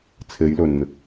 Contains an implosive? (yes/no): no